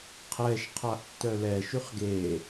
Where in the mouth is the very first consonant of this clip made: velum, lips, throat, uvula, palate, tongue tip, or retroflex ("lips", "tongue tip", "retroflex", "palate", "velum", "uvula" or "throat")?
uvula